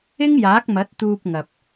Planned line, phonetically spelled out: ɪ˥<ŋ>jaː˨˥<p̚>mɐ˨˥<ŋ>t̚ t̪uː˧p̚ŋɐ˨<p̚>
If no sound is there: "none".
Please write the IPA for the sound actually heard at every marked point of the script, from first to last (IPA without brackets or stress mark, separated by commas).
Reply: ŋ, k̚, none, p̚